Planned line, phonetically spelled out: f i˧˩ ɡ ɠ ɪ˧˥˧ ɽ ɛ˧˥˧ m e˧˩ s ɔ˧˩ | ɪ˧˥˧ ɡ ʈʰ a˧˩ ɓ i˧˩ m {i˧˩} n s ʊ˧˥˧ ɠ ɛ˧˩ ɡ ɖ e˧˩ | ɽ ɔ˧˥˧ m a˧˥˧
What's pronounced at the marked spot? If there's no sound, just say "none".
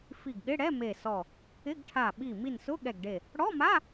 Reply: i˧˩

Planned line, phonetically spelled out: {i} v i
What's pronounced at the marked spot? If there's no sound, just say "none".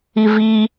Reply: i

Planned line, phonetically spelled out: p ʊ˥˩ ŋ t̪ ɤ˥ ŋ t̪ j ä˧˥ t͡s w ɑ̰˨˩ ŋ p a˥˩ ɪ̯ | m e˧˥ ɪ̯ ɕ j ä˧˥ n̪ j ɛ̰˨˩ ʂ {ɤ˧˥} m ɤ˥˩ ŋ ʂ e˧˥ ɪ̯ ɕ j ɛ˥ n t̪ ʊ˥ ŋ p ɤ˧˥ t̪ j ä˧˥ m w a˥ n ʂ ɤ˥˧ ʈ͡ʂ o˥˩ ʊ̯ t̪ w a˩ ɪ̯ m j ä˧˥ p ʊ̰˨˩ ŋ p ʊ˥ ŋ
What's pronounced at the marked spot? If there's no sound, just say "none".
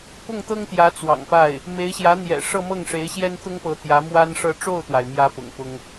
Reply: ɤ˥˧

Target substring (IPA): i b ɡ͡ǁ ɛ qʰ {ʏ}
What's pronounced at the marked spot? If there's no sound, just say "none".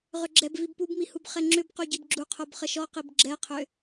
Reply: ʏ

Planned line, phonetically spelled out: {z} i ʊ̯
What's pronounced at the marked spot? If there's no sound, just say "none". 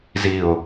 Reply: z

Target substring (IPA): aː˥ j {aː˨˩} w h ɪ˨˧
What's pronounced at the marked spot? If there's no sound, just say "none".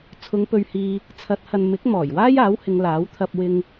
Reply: aː˨˥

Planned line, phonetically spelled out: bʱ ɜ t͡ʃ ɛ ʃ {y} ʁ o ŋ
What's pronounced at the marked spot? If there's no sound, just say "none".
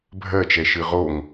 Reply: ɨ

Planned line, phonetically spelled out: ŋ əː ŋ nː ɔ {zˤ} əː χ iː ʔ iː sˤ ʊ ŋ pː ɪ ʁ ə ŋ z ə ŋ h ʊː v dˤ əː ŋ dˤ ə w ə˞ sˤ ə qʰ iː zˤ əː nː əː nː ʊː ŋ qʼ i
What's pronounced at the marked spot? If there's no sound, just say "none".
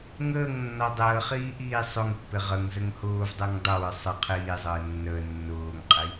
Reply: dˤ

